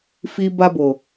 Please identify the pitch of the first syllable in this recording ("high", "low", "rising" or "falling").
high